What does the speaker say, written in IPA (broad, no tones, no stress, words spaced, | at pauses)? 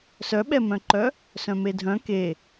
sœɓɛmœ̃ǃœ | sœ̃medʱœ̃ ke